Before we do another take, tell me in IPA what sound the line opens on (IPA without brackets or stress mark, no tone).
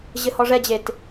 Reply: ʑ